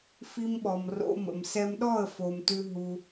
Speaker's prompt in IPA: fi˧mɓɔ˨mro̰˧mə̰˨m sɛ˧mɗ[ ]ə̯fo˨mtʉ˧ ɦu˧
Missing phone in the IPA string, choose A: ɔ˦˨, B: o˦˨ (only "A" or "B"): A